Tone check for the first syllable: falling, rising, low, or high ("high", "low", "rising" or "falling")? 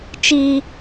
high